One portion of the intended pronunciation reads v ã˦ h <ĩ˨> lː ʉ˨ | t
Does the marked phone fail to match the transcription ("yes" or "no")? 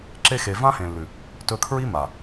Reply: yes